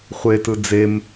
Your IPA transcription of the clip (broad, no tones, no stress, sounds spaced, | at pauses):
χʷ e t ɯ d͡z e m